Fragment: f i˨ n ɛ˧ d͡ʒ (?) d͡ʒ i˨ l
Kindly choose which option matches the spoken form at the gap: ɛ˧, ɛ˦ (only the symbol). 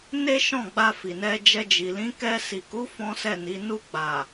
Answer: ɛ˧